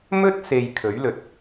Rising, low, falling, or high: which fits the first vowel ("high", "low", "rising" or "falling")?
high